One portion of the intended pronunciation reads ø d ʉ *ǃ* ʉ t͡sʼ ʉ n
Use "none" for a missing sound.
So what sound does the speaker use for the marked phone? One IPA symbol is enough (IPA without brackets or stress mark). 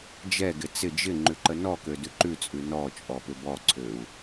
ǃ